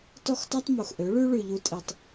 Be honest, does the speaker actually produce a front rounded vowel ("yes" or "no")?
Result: yes